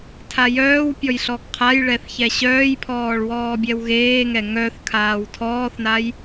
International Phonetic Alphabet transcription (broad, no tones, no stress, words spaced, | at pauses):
tʰajœːwpʲɔj ɬɔɡqʰajɭɛθ çɛɕœːjpʰɔːɭ wɔːbʲɛwɣeːŋɛ ŋœθ kʰaːwtʰɔːθnaj